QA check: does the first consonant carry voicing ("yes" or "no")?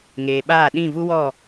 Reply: yes